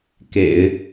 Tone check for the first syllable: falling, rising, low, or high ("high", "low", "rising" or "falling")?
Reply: low